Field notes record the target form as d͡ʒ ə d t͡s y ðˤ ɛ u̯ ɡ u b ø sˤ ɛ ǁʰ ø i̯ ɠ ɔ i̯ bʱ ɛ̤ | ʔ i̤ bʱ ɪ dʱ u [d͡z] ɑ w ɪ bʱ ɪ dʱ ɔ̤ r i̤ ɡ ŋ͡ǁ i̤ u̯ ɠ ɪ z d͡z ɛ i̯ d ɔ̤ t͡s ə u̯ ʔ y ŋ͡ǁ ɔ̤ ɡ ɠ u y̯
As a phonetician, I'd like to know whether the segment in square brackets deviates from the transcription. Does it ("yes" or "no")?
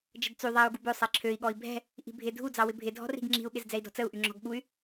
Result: no